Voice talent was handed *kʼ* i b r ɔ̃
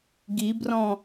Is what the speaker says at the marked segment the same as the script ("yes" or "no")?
no